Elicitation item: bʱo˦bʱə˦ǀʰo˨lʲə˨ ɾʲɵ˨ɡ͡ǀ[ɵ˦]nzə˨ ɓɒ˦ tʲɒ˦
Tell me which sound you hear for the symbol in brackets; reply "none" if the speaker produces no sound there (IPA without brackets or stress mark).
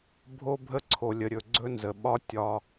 ɵ˦